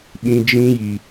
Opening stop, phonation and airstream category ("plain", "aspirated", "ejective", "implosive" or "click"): implosive